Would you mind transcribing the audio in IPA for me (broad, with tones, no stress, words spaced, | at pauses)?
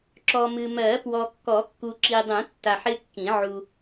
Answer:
ǁɔ˨mɨ˨mɜ˨˩˦ pwɔ˨kːɔ˨˩˦kːu˨ ǁi˨dˤũ˨˩˦tːa˨ħ ɪ˦kːĩ˨˩˦ ʕu˨